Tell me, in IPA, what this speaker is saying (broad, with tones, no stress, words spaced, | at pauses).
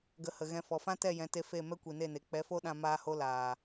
ɡə˧ hə˨ɣɛ̃˧ fɔ˨fã˦ tɛ˦˨jɛ̃˨˦te˧ fe˦˨ mɛ˦kʷi˨ne˦˨ne˨ k͡pɛ˨˦fo˦ɗã˧ maː˧ho˧ laː˨